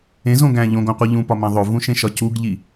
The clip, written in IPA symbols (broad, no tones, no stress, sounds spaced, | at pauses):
ẽ z õ ɡ æ̃ ʎ õ ɡ õ qʷ i ʎ ũ p ɒ m æ̃ ðˤ o v ũ ʃ ẽ ʃ ɒ c u ɡ ʎ i